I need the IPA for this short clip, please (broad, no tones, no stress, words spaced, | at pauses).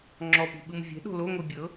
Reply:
ŋ͡ǁɔpi̤ɓɯm vʲɛ̤ɗo̤ loŋʷi bʲɤ